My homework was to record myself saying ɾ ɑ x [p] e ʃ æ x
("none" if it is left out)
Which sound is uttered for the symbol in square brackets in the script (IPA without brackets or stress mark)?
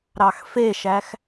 f